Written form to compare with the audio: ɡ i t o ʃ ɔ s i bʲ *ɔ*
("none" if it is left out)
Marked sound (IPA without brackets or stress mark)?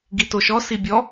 ɔ